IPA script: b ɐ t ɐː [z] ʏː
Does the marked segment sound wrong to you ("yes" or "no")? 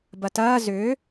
no